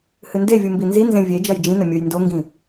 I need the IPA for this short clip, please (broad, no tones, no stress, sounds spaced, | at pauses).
h ɨ n d e vʲ u m b i n z i n z ẽ vʲ e d͡ʒ ɐ j d͡ʒ ĩ n ɐ mʲ u j n d o ŋ ɡ ĩ